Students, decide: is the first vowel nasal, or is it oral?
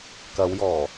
oral